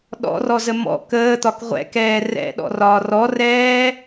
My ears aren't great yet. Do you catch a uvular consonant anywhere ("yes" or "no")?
yes